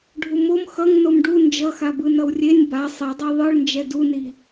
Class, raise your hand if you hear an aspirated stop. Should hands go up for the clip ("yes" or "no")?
no